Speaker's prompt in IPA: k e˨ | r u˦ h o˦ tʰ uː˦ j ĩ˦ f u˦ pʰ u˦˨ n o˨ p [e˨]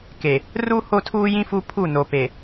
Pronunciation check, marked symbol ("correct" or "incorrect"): correct